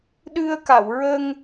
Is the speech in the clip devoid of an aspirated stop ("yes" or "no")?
yes